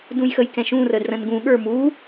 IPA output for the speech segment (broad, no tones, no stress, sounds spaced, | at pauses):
d ũ j x ə j k ɛ̃ ʃ ũ r ə d r ə̃ n ɡ ũ ɠ ə˞ m u